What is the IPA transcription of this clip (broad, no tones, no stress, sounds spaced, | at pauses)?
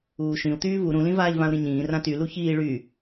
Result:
uː ʃ ĩ u̯ t̪ yː v u ɾ ũ l ĩ v aː ʎ v ã u̯ ɾ ĩ ɲ ĩː r ã t y l u ç iː ɭ y